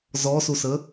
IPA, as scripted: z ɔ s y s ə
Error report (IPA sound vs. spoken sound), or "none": y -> u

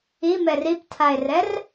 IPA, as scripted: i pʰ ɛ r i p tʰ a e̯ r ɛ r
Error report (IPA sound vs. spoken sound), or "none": pʰ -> m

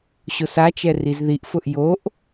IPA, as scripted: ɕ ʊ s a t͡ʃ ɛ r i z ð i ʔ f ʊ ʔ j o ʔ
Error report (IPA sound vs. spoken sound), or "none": none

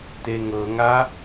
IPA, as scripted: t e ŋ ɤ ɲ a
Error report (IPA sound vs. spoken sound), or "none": ɲ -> ŋ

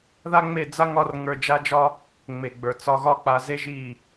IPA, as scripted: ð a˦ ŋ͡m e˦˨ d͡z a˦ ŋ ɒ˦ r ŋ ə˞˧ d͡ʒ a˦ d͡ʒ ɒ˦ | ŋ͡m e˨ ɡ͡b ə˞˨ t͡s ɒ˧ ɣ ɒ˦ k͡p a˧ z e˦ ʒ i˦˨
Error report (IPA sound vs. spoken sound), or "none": none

